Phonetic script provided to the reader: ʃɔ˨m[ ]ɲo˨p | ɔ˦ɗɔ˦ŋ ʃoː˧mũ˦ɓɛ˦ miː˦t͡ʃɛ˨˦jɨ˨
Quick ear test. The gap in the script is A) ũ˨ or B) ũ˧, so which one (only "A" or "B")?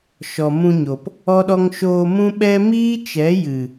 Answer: B